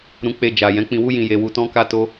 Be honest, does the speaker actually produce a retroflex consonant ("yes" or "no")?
no